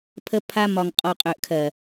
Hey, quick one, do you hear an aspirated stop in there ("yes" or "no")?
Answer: yes